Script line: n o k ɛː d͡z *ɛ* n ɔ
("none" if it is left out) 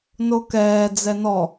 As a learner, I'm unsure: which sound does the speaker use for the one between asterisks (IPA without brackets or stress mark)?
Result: ɛ